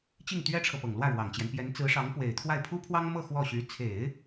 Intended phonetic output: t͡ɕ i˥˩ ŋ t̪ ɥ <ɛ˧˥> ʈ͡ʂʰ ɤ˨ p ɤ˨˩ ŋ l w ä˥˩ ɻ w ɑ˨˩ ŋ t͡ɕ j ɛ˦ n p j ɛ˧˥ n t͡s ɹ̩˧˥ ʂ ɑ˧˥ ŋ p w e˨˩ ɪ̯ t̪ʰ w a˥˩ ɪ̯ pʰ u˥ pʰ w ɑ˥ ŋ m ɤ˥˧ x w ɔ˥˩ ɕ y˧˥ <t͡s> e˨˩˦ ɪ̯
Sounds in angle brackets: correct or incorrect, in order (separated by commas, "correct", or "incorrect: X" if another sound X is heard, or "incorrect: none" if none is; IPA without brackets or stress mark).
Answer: incorrect: ɛ˥, incorrect: t͡sʰ